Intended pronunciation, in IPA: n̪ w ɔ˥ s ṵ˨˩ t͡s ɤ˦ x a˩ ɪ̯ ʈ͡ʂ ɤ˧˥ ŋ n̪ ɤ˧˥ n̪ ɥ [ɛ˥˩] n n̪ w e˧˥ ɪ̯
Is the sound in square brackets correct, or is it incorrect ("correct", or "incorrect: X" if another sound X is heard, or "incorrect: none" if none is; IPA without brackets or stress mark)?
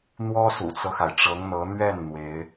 correct